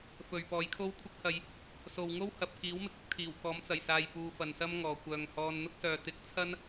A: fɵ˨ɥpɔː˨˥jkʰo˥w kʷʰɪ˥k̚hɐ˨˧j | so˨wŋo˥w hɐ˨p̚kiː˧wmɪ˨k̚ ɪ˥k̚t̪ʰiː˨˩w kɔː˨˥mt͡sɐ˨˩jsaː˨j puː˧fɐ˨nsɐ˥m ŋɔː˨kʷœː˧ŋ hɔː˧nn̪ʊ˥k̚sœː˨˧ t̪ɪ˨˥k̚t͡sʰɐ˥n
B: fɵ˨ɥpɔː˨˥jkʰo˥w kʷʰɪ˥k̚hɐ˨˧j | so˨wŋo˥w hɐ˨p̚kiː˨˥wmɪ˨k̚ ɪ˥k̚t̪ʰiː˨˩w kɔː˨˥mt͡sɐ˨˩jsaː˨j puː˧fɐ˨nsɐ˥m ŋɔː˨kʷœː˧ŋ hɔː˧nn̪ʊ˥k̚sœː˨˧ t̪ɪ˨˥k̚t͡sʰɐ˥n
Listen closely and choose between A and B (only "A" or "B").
B